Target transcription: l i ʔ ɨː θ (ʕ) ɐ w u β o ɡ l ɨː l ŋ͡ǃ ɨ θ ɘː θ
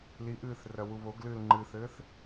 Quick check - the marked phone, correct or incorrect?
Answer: incorrect: r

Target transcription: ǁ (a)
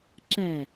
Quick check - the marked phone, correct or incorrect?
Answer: incorrect: æ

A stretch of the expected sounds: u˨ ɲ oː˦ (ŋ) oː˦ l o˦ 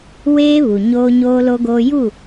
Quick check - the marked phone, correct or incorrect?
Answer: incorrect: ɲ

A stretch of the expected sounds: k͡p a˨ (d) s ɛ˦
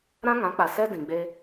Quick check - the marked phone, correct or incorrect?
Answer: incorrect: none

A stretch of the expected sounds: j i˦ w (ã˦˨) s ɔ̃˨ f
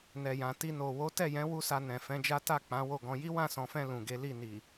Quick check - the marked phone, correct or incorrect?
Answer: correct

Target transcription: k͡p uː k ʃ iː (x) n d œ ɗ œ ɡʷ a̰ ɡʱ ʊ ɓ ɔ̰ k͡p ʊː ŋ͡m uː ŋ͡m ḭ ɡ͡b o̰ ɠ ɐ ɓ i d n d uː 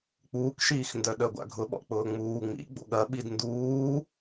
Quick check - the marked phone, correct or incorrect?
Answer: correct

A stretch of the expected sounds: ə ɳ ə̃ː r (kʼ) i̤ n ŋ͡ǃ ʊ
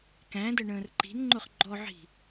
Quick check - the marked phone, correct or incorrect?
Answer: incorrect: ǃ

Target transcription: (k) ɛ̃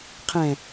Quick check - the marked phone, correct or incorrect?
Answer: incorrect: qʰ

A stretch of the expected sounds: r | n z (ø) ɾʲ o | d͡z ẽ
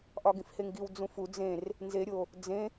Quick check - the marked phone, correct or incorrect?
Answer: incorrect: e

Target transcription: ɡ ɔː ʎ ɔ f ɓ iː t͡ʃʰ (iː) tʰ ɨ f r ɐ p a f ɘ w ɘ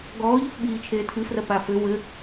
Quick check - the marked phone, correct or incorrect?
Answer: incorrect: eː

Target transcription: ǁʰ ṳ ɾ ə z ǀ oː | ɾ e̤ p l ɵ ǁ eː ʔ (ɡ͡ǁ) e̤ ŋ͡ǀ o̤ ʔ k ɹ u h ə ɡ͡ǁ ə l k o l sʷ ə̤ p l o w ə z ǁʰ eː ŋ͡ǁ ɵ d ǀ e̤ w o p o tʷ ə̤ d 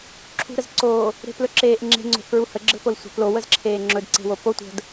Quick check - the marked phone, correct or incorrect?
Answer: incorrect: ŋ͡ǁ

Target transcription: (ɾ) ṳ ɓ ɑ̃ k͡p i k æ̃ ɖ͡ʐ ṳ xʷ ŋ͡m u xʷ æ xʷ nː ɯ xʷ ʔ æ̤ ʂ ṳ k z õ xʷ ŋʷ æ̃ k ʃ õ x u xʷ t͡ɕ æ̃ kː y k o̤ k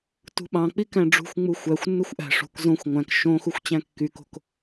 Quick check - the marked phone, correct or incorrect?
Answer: incorrect: t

